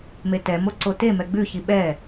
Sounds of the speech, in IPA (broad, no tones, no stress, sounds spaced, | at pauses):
m e t ɛ m o ǀ o t e m ɛ ɡ͡b ʉ ç i ɓ ɛ